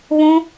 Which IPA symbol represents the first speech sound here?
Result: β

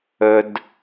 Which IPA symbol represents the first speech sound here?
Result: ɵ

